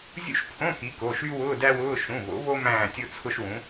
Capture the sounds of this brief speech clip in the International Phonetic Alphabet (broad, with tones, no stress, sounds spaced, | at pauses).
zʲ ṵ˥˧ ʃ pʰ õ˧˥˧ k i˨˥ k o˩˧˩ ʃ y˥ w ʊː˧˥˧ d æ˥ w ʊː˧˥˧ ʃ ũ˩˧˩ β o̰˨˥ β o˥ m æ̃ː˥˧ tʲ o˥ t͡sʰ ʊ˥ ʃ w ũ˨˥